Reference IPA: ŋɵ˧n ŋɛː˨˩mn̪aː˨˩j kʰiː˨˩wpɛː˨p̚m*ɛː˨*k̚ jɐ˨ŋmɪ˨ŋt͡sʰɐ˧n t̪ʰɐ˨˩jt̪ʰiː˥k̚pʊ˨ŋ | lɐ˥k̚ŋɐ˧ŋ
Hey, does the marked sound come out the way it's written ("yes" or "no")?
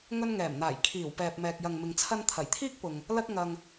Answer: yes